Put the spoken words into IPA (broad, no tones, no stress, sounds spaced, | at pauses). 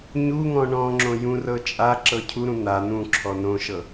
ɲ u ŋ ɔ̃ ɳ ɔ̃ ŋ͡ǁ õ j ũ r ɤ t͡ʃʼ a ǁ ɤ cʰ u ɾ ũ n̪ a n̪ ũ ǁʰ ɔ n õ ʃ ɤ